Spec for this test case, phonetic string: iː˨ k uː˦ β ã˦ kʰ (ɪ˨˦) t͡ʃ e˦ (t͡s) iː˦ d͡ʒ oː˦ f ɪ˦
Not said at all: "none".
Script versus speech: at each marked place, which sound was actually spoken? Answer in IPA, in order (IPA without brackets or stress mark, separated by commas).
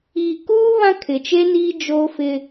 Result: ɪ˨, n